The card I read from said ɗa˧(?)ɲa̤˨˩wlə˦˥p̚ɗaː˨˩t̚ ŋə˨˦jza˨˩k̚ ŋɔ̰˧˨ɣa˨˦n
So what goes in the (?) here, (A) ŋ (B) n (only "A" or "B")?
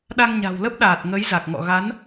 A